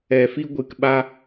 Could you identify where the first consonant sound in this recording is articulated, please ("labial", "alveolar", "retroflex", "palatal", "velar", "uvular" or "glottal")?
labial